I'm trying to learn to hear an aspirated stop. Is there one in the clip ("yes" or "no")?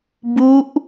no